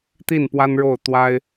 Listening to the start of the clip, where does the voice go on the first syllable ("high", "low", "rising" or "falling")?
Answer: falling